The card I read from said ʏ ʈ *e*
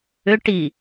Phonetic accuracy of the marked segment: incorrect: i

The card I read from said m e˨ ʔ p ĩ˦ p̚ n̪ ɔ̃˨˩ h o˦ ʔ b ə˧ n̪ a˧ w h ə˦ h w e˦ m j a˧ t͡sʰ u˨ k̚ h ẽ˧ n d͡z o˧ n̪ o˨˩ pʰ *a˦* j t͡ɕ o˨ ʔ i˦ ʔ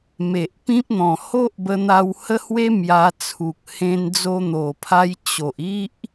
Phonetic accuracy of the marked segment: incorrect: a˧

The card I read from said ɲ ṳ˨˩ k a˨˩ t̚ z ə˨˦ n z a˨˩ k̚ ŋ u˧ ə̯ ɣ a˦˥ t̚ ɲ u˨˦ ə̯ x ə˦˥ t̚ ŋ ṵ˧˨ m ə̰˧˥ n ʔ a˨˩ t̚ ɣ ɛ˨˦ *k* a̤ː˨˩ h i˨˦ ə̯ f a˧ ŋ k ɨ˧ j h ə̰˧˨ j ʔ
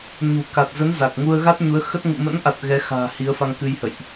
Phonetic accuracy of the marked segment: incorrect: x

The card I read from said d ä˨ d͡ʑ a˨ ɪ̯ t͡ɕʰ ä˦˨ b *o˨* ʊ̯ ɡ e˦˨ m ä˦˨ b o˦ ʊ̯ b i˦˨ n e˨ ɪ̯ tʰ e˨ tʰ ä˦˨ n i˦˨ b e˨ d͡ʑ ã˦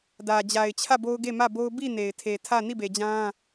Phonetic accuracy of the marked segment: incorrect: o˦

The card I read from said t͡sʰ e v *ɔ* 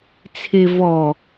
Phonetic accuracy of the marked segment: correct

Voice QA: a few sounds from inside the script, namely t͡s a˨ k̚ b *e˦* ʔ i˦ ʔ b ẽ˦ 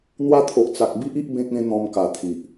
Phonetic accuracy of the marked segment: incorrect: i˦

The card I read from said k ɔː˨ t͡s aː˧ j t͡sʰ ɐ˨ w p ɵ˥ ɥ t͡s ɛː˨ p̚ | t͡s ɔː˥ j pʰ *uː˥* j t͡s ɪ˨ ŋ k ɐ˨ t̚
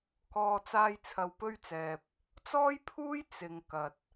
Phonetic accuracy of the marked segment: correct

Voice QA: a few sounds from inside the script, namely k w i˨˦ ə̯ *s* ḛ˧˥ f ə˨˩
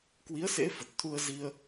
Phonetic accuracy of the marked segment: correct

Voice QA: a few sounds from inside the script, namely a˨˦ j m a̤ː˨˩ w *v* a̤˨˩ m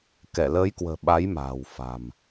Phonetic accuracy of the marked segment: incorrect: f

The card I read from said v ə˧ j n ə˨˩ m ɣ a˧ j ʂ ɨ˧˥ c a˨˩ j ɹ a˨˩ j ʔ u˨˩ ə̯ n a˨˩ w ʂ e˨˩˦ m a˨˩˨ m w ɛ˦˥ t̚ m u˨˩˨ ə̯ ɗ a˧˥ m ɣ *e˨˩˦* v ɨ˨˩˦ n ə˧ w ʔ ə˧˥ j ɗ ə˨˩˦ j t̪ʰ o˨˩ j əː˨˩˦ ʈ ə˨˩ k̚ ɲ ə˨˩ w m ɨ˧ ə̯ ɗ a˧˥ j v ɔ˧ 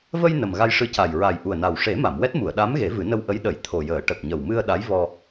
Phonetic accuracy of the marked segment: correct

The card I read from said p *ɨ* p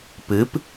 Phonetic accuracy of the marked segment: correct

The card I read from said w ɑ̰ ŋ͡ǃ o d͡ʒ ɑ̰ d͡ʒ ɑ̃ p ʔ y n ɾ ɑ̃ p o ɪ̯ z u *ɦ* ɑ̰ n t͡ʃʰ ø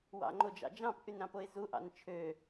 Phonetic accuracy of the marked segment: incorrect: ʔ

